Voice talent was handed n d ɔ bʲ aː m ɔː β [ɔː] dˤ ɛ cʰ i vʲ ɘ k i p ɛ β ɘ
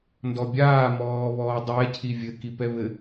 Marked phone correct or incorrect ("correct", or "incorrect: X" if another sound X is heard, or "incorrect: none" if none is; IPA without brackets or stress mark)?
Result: correct